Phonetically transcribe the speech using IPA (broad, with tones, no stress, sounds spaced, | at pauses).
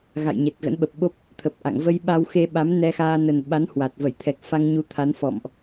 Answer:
ɣ a̰˧˨ j ɲ e˨˩ t̚ ɣ ə̰˧˥ n ɓ ə˨˩ p̚ ɓ o˦˥ p̚ | t̪ʰ ə˨˩ p̚ ʔ a̰˧˨ ŋ v ə˧ j ɓ a˧ w x e˧ ɓ a˨˦ m n ɛ˧ x aː˧ n ə˨˩ n ɓ a˨˦ n h w a˨˩ t̚ v ə˧˩ j t̪ʰ ɛ˨˩ k̚ f a˧ ŋ ɲ u˨˦ t̪ʰ a˨˦ n f ɔ̰˧˨ m ʔ